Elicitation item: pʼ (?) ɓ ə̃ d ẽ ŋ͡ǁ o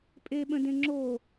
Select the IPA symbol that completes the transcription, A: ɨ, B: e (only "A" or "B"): B